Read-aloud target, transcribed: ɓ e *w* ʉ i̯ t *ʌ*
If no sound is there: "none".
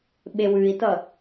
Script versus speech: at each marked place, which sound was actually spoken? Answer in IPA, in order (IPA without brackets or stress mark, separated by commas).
w, ʌ